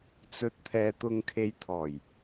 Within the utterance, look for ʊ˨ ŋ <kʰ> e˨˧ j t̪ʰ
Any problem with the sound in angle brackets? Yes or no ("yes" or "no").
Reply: no